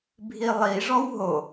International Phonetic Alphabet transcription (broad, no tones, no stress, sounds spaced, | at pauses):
bʱ i lˠ i ʐ ɔ w ɦ o